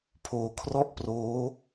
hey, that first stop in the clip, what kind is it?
aspirated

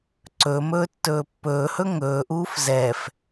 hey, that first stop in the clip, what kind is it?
click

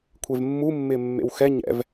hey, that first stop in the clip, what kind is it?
aspirated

